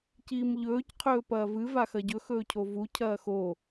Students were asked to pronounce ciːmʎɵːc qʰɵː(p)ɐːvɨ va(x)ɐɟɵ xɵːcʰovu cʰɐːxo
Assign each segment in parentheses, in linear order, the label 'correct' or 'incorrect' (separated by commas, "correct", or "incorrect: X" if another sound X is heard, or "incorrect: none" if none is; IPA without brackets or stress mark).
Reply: correct, correct